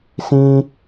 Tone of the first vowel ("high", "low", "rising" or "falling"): high